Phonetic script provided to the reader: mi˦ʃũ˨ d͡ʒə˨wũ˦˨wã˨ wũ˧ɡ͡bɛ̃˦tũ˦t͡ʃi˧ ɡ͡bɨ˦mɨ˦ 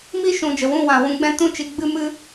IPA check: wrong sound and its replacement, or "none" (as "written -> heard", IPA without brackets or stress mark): none